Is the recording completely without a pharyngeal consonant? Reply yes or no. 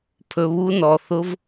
yes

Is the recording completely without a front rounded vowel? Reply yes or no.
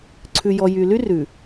no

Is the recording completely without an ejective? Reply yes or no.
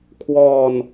yes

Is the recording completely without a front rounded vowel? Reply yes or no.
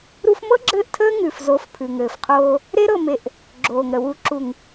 yes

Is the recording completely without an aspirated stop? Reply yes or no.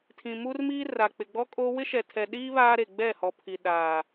no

